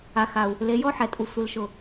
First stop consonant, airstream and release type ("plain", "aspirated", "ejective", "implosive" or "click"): ejective